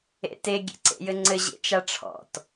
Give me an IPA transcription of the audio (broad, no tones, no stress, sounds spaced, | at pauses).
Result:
ḛ t e ɡʲ ḛ ǀ ḛ j ɘ ŋ͡ǀ ɘ ʑ ḛ t͡ʃ a ʈ͡ʂʰ ɔ̰ t